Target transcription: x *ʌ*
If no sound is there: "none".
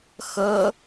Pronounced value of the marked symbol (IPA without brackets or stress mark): ʌ